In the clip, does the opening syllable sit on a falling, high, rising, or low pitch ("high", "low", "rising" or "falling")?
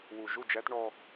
low